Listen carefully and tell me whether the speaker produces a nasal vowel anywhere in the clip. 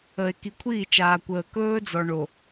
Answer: no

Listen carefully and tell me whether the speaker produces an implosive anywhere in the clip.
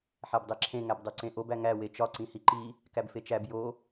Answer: no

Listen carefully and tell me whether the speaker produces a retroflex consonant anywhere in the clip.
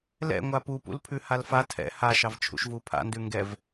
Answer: no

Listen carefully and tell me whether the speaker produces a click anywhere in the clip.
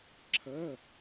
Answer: yes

